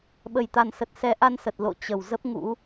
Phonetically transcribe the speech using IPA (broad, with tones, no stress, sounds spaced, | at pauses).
ɓ ə˨˩ j t̪ a˨˩ n s ə˨˩ t̚ s ɛ˨˦ ʔ a˧ n s ə˨˩ t̚ l o̰˧˨ t͡ɕ ə˨˩ w z ə˦˥ p̚ ŋ ṵ˧˥